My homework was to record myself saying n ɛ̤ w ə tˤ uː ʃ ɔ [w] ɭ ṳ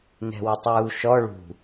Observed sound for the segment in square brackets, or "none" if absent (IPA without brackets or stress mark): none